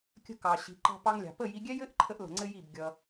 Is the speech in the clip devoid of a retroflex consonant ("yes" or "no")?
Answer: yes